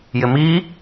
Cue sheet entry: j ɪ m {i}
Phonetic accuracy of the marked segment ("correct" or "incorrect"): correct